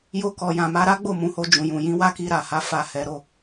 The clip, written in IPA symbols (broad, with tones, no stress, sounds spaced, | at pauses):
j o˧ k ɔ˨ j ã˨ m a˧ ɾ a˦ ɡ͡b o˦˨ m ũ˨˦ h o˧ d͡ʒ ũ˨ j ũ˨ j ĩ˨˦ w a˦ k i˧ ɾ a˨ h a˧ f a˧ h ɛ˧ ɾ o˦